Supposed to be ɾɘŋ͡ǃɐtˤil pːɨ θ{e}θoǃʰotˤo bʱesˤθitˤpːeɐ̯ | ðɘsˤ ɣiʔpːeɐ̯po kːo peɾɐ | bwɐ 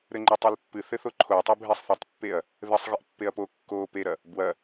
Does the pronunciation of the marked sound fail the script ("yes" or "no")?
yes